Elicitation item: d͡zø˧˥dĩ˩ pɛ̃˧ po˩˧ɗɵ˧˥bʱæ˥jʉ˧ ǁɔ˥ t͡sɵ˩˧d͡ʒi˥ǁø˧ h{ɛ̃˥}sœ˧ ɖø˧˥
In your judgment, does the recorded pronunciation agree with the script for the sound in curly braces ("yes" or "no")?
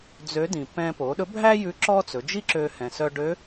no